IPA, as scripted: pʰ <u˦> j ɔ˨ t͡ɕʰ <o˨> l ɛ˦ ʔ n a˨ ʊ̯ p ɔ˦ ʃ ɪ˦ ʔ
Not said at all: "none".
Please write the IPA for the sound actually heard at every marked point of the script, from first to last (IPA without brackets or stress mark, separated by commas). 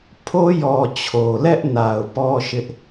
o˦, o˨